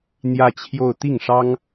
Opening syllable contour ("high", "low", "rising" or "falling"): falling